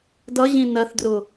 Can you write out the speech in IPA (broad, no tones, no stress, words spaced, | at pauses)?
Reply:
dʌʑĩ nɜθdrʊ